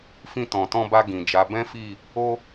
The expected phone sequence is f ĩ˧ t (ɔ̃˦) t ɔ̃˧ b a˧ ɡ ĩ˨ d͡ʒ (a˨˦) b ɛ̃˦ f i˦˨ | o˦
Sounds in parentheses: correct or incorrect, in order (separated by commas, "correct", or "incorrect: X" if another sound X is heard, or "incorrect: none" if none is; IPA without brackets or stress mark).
incorrect: ɔ̃˨, correct